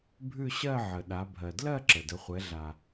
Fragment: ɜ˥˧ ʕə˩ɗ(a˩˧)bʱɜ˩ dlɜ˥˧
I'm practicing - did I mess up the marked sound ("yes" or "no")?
no